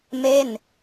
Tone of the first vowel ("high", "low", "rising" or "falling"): falling